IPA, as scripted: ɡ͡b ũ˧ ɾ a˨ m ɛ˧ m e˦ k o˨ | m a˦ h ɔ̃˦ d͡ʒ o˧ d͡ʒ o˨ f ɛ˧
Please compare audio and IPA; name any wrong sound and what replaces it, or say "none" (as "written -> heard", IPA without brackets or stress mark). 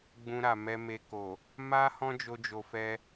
e˦ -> e˧